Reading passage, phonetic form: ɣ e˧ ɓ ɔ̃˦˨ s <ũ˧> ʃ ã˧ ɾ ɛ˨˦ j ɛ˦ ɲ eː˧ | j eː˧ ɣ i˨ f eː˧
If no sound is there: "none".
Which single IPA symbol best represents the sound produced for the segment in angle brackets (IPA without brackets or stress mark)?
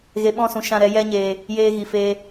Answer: ũ˧